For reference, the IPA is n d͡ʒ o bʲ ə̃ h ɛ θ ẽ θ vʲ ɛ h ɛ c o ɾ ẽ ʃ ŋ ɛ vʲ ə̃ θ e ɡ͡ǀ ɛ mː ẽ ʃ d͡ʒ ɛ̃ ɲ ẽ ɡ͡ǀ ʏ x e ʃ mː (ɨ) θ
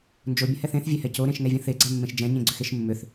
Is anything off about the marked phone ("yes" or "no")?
yes